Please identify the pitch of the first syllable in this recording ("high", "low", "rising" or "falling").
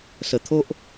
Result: low